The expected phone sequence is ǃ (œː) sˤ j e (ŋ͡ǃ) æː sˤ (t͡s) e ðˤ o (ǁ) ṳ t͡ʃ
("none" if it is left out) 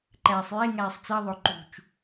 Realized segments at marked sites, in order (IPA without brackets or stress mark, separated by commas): æː, ŋ, t͡s, ǃ